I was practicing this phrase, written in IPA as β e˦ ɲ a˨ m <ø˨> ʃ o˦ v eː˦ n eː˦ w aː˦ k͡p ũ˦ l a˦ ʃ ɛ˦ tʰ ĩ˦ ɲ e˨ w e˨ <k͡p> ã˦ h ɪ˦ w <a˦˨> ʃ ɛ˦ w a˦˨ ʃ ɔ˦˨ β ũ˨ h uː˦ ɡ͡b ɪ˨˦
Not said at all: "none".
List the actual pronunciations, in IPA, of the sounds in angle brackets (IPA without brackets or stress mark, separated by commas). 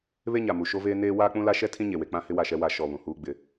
u˨, k͡p, a˦˨